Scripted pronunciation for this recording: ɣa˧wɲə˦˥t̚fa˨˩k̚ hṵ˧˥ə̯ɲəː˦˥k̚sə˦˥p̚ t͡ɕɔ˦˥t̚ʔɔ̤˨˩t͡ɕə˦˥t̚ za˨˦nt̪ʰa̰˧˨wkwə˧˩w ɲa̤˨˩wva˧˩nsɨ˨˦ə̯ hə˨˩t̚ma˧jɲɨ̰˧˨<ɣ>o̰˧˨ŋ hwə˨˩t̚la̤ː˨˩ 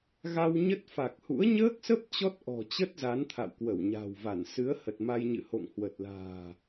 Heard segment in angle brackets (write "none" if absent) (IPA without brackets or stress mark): h